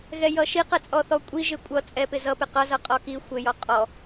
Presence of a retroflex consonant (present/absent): absent